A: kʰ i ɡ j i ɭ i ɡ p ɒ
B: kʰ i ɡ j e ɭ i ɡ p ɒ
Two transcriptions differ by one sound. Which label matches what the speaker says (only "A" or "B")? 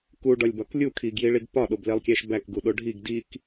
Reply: A